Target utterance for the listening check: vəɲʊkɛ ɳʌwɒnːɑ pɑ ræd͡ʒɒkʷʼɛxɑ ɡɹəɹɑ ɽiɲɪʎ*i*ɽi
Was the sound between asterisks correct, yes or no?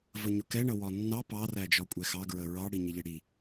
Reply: no